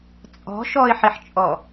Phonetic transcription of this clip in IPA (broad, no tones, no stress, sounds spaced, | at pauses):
t͡sʼ ɔ̤ ʃ ɔ ɪ̯ ħ i ħ t͡ʃʼ ɔ